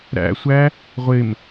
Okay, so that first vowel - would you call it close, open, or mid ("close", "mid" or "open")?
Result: open